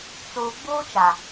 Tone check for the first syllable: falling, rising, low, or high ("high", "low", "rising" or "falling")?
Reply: low